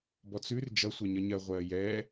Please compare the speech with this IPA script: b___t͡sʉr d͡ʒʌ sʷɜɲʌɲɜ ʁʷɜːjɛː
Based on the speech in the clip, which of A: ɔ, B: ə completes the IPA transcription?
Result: A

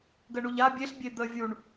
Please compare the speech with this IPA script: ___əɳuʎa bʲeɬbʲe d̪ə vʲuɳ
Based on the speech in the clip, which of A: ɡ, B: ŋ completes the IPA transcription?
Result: A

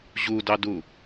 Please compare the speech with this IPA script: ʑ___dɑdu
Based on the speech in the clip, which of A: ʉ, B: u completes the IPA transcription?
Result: B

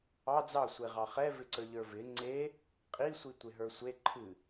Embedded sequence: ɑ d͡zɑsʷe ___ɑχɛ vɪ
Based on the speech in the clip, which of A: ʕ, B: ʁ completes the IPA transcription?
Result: B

